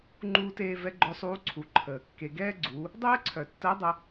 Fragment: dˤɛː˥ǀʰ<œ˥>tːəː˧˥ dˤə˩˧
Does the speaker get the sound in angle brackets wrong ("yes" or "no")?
yes